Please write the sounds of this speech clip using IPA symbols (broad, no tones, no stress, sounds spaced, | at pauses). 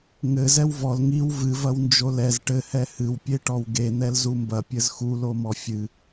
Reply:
ŋ ɘ z ɛ w v ɔ l ŋ i w v ɨ v ɐ w n d͡ʒ o l ɛ z ʈ ɘ h ɛ h ɨ w pʲ e ʈ ɔ w ɡ e n̪ ɛ l z u m b ɐ pʲ ɘ z x u l o m ɔ fʲ ɨ